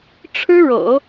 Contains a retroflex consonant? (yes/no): yes